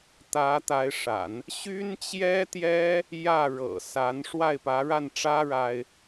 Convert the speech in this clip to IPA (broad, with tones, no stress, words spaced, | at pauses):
t̪ä˧˥ t̪a˧˥ɪ̯ʂa̰˨˩˦n | ɕy˥nt͡ɕjɛ˥t̪jɛ˥ | jä˥˩ɻɤ̰˨˩ sa˧˥n ʂwa˥˩ɪ̯pä˧˥ɻa˥˩nʈ͡ʂä˥ ɻa˥ɪ̯